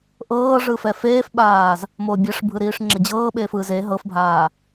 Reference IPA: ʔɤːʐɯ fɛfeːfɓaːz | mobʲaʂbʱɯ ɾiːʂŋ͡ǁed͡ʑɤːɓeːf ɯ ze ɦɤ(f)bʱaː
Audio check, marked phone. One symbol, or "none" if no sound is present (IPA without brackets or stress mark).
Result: f